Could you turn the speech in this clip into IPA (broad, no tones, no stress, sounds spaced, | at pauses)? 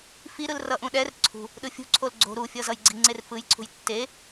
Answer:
f i ɾ ɯ l r ʌ ʔ ũ ɗ ɛ r ǀʰ ṳ | ɗ ɯ fʲ ṳ ǀʰ o l ɡ͡ǀ o̤ ɾ u fʲ ʌ z ʌ j ɡ͡ǀ i ŋ͡ǀ e r f ɯ j ǀʰ ṳ j tː e